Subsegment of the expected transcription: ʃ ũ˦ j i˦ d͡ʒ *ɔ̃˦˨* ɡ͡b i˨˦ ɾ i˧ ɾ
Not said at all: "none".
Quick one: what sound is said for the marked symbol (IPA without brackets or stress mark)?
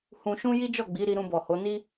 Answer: ɔ˦˨